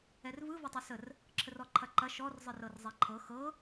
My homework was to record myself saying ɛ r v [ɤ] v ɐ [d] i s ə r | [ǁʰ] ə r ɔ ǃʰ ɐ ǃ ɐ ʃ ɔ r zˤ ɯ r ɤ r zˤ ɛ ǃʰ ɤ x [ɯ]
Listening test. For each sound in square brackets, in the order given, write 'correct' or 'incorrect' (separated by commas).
incorrect, incorrect, correct, incorrect